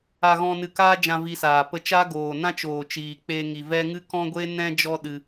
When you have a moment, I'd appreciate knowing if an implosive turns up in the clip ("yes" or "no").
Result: yes